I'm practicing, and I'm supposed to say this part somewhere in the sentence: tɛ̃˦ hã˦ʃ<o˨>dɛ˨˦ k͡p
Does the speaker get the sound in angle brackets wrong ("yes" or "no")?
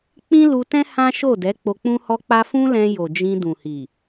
yes